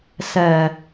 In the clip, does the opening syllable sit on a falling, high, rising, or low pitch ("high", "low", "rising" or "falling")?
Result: low